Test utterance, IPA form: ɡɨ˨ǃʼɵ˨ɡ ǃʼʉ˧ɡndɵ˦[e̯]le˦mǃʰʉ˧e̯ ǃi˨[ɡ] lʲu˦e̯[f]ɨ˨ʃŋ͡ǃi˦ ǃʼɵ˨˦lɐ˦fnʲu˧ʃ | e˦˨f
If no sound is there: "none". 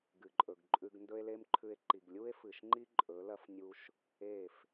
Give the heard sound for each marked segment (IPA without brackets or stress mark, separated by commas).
e̯, ɡ, f